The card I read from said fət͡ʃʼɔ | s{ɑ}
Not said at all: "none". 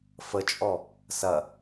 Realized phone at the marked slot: ɐ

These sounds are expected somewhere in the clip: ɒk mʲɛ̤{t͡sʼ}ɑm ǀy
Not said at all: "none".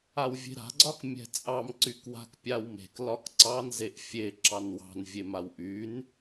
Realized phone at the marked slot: t͡sʼ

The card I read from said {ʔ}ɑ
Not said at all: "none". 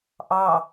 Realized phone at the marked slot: ʔ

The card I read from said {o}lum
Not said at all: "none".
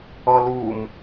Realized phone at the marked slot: ɔ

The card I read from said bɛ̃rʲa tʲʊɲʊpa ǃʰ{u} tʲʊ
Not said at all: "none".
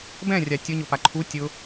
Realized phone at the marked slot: u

